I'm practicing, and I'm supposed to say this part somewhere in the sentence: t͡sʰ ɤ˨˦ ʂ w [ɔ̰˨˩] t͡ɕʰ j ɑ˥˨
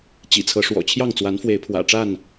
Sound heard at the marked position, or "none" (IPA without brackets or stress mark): ɔ̰˨˩